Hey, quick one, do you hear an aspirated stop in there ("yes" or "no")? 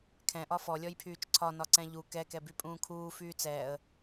yes